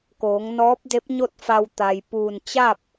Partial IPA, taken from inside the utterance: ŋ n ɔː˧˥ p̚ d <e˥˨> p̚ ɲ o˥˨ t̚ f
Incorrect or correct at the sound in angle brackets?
incorrect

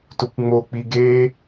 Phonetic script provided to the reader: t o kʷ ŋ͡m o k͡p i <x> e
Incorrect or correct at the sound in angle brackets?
incorrect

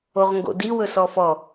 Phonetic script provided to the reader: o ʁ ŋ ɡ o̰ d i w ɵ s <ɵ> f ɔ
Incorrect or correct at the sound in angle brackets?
incorrect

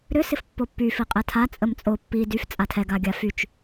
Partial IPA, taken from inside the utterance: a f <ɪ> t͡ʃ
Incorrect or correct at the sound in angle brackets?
incorrect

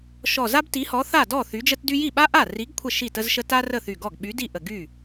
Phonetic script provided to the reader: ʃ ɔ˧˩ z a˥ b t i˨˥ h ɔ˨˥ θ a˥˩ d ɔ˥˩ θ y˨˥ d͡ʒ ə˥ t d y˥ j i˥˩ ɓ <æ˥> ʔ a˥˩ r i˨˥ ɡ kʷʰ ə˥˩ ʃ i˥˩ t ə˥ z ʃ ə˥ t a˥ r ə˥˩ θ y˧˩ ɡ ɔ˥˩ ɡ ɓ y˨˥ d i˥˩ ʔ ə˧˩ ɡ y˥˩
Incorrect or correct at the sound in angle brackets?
incorrect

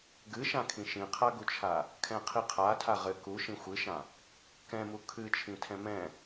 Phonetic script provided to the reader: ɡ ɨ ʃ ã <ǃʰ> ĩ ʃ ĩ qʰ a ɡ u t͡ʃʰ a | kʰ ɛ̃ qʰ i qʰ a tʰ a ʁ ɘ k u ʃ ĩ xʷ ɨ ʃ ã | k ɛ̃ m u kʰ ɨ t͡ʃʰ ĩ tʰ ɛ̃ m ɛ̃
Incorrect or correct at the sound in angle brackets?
incorrect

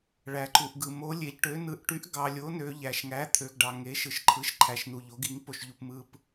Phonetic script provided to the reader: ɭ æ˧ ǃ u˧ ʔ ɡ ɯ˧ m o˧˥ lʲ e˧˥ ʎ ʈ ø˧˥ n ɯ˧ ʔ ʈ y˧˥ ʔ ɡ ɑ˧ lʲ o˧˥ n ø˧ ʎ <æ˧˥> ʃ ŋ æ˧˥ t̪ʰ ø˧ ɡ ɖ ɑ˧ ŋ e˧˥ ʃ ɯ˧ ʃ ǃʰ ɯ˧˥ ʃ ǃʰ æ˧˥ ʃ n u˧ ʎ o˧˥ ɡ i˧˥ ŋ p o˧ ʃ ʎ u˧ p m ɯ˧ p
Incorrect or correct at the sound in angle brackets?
incorrect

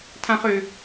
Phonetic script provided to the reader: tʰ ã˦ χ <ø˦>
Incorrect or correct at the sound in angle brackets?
correct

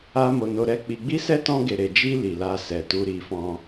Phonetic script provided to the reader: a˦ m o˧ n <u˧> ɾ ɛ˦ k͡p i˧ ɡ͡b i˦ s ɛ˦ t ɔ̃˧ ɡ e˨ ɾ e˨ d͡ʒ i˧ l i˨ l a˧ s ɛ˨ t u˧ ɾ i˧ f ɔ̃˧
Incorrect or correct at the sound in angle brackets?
incorrect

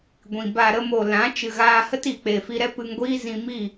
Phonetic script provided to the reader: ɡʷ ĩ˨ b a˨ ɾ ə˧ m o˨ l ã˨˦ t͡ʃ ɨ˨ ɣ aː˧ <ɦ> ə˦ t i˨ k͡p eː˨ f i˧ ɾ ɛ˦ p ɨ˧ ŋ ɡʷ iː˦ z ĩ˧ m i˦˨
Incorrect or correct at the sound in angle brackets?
incorrect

